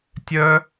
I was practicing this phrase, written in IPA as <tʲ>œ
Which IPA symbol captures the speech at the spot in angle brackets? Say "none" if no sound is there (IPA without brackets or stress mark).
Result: tʲ